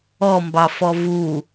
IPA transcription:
ɔmbɑ fɔvu

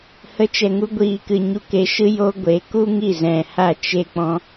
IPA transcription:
hə˨˦t͡ʃɛ˨ŋu˧ ɡʷiː˨kɨ˨ ɲu˨ke˨ ʃɨ˧ jo˦ɡʷe˨˦ ku˦ŋi˦˨zɛ̃˨ ha˦˨t͡ʃe˦k͡pɔ̃˦

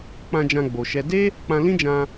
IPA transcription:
k͡pã˧d͡ʒã˧ ɡ͡bo˧ʃɛ˦ de˦ | k͡pã˧ lĩ˦d͡ʒã˧

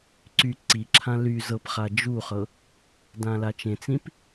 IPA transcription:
ǀy ǀiǁʰã ly zɤpχa d͡ʒuχɤ | dãlat͡ʃẽt͡sĩp

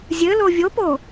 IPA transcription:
zʲɘlo vʲopo

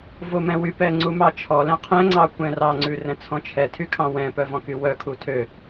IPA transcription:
vomɛ̃wypɛ ŋ͡ǀumɑt͡ʃʰɔlɛ̃ qʰɛ̃ŋ͡ǀɑ kʷɛ̃rɑŋ͡ǀʉ rɛ̃t͡sʰɔ̃t͡ʃʰɛtʰy kʰɑ̃wɛ̃pœ vɔ̃kywœkʰu tʰø

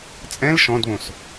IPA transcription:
t͡sʼɛ̃l ʃɔ̃dβõs

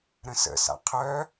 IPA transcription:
ɾə̃sə̰sa̰ qʰœ

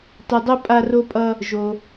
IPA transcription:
tʌ˧dˤo˦ pʼa˦ro˦pʼʌ˦ | ʒo˧

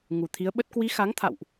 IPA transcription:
ŋu˨˩t̪ʰi˨˦ə̯ɓə˦˥t̚ kwi˨˦xa˨˦ŋt̪ʰa̰˧˨wʔ

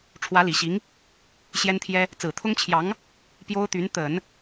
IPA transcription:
ʈ͡ʂʰwä˧˥li˨˩ɕi˧˥ŋ | ɕjɛ˥nt̪ʰjɛ˥ | t͡sɹ̩˨˩t̪ʰʊ˥ŋt͡ɕʰjɑ˧˥ŋ | pjo˥ʊ̯t̪y˧˥n t̪ə˨˩˦n

